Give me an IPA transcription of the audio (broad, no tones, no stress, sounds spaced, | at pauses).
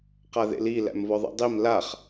q a ð ḛ l i l æ̰ m v ɔ ðˤ ḭ dˤ i m l a χ